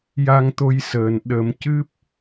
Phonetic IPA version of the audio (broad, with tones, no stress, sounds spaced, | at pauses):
j a˧ ŋ t̪ o˧ j s əː˨˩ n ɗ ə˨˩˦ m c ɨ˦˥ p̚